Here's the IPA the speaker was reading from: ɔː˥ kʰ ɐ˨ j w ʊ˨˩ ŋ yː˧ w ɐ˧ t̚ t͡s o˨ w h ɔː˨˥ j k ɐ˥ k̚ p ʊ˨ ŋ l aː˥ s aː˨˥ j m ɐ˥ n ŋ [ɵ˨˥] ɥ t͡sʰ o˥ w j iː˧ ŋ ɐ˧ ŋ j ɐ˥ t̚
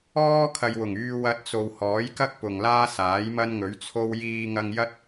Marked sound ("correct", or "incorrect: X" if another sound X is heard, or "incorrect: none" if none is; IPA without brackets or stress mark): correct